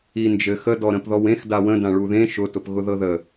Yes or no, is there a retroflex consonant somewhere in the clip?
yes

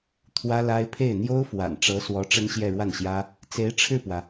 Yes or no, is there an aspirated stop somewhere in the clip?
yes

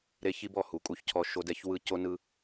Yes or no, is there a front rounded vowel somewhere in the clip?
no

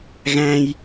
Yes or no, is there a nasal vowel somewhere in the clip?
yes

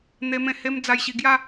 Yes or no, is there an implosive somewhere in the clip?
no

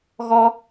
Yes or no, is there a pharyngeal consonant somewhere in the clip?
no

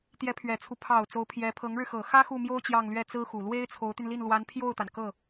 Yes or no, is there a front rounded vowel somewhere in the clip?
yes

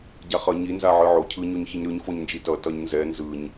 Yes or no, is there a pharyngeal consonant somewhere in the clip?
yes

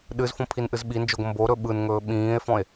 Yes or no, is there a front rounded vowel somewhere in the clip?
no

